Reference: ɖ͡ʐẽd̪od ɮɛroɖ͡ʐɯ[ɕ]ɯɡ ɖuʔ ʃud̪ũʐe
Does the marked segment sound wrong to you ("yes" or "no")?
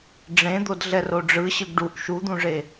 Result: no